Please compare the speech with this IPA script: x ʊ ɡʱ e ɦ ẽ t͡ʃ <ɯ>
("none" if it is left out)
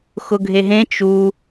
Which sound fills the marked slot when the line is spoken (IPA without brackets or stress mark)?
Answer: u